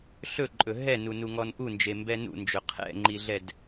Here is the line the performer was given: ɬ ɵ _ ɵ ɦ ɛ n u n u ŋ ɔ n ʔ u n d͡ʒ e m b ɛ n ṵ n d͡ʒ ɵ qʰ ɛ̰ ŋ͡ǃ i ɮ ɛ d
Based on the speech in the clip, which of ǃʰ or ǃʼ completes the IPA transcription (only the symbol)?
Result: ǃʼ